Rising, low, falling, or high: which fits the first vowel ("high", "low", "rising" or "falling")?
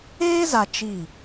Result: high